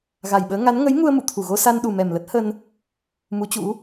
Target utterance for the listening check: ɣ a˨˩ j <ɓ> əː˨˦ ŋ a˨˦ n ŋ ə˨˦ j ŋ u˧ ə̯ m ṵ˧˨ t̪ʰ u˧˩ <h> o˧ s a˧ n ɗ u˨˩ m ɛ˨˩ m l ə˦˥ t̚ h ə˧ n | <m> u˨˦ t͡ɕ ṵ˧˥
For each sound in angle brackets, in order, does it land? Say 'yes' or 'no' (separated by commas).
yes, no, yes